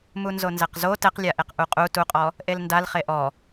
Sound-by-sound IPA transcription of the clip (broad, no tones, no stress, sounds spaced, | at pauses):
m u n z o n z ɛ q z o t ɛ q lʲ a ʔ e q ʔ u qʼ u t u qʼ ɔ | ʔ e l n d a l χ e ʔ ɔ